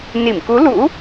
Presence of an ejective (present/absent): absent